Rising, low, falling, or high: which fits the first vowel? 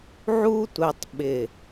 high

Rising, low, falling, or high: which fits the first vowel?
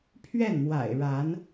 falling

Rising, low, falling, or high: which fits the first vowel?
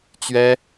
high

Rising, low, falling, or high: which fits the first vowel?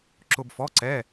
high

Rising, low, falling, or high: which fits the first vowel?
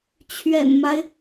low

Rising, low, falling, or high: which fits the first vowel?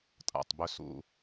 low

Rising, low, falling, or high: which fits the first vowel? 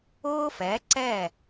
high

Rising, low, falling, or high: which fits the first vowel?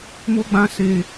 high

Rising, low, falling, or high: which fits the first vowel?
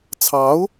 rising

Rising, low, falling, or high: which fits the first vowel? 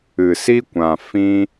low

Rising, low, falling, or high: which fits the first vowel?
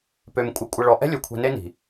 low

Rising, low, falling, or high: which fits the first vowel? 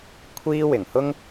high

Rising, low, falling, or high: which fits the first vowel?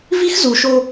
high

